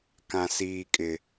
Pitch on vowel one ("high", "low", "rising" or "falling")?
low